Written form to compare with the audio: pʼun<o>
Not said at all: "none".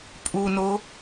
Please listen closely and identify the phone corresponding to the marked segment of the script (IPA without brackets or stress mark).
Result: o